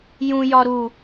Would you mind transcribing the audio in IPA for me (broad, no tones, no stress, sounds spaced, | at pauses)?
j ũ j ɒ ɾ u